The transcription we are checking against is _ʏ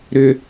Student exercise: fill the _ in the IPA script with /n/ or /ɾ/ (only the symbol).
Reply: ɾ